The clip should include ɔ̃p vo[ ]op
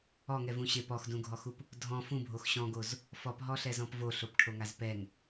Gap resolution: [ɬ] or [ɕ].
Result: ɬ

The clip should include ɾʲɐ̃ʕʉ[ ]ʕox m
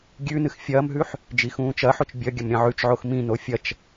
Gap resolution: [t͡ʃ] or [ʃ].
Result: t͡ʃ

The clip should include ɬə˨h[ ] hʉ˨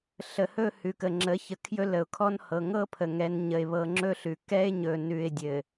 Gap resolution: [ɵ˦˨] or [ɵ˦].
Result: ɵ˦˨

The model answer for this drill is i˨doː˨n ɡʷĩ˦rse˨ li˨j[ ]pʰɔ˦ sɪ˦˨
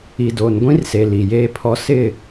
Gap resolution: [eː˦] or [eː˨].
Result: eː˦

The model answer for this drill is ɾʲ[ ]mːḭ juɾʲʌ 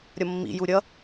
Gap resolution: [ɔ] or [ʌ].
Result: ʌ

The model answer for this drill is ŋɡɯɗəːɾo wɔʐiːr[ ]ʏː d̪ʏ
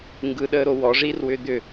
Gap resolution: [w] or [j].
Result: w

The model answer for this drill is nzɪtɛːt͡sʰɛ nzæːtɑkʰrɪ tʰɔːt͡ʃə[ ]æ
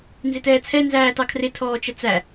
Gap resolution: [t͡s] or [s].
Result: t͡s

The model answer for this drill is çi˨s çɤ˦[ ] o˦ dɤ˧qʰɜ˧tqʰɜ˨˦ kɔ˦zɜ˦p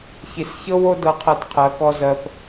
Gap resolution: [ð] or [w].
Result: w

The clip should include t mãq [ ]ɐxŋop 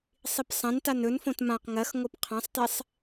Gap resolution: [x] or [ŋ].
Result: ŋ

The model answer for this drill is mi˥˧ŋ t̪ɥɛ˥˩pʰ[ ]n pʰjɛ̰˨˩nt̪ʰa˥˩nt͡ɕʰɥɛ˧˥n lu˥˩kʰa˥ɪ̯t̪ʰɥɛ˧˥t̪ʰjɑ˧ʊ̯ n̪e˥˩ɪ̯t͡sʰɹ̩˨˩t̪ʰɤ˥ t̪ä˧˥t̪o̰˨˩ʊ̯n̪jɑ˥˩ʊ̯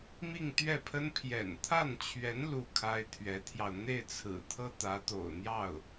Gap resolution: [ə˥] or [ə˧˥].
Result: ə˥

